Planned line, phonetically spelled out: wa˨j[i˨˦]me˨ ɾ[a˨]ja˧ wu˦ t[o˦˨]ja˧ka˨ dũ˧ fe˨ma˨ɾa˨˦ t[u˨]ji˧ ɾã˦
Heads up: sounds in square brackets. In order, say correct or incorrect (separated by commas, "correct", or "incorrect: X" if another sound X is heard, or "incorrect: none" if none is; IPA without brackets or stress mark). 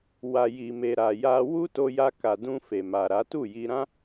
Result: incorrect: i˨, correct, incorrect: o˧, incorrect: u˦˨